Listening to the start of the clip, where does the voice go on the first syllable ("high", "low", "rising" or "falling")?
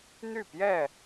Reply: falling